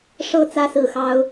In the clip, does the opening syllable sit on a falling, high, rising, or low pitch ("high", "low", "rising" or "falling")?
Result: high